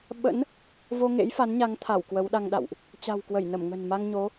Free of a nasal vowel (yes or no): yes